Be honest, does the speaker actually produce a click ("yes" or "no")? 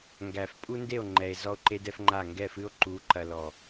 yes